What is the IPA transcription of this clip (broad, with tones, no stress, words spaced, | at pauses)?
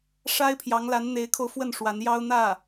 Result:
ʂa˥ɪ̯pʰjɑ˧˥ŋ la˧˥nn̪e˧˥ɪ̯kʰo˧ʊ̯fwə˥˩n ʂwa˧˥njɑ˥ʊ̯n̪ä˥˩